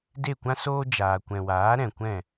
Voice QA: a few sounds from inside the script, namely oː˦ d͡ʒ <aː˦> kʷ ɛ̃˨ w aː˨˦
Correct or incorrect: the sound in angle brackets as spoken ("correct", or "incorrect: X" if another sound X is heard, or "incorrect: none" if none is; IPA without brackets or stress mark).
incorrect: aː˨